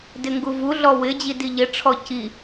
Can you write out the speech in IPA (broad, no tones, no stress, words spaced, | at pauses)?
dɪŋɡuvuɮɔ wɪd͡ʑi diʎɪʈ͡ʂʰɔ ci